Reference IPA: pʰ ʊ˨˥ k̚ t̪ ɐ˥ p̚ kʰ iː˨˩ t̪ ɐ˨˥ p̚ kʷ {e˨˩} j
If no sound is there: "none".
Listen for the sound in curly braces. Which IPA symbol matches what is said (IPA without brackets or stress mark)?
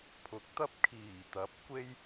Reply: e˥